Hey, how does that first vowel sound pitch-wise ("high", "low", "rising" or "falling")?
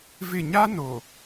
falling